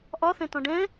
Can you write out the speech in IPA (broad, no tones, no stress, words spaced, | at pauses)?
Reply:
ʔɒ θɛ̃tɔ̃ɖɛ̃